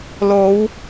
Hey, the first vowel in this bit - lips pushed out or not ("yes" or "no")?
yes